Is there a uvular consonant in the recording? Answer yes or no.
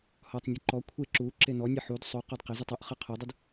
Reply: yes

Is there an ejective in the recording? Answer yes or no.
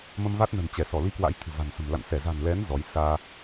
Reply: no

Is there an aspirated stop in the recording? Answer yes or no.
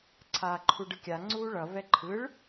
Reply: yes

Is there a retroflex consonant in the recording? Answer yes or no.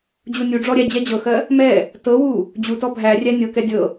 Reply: yes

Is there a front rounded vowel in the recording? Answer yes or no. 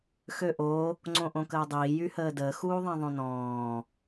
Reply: yes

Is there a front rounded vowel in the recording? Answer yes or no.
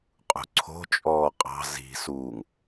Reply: no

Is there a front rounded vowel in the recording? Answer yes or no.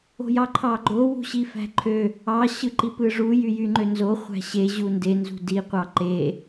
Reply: yes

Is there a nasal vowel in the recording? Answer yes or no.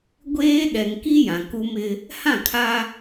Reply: yes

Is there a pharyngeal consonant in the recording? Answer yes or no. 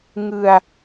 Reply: no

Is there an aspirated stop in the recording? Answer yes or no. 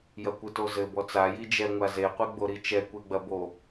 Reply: no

